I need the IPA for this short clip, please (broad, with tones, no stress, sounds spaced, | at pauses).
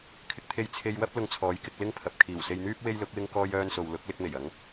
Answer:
kʰ ɪ˧ k̚ t̪ʰ e˧ j t͡sʰ e˧ j w ɐ˥ p̚ l ʊ˧ ŋ t͡sʰ ɔː˨˧ j k ɪ˧ k̚ l ɪ˥ ŋ pʰ ɐ˨ p̚ kʰ iː˨˩ w s e˧ j n̪ yː˥ p̚ w e˥ j l ʊ˨˥ k̚ w ɪ˥ ŋ k ɔː˥ j œː˥ n s o˧ w l ʊ˨˥ k̚ l ɪ˥ k̚ m e˨˩ j ɐ˨˧ ŋ